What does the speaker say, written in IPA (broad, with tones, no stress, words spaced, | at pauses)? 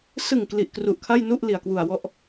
sɯ˨˩ŋ kli˨˩ʔkru˨˩ʔ kʰa˥˩jnu˥˩ʔ li˨˩a̯kwu˨˩a̯wɔ˥˩ʔ